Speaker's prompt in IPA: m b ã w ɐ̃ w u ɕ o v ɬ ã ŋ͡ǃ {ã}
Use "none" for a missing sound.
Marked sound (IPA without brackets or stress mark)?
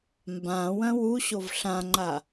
a